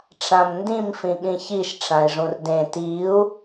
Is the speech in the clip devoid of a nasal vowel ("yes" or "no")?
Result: no